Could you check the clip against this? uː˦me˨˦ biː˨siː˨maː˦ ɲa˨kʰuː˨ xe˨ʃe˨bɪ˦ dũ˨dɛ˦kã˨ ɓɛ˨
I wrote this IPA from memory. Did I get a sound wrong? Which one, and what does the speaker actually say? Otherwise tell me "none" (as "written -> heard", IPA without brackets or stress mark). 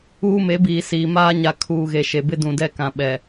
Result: x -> ɣ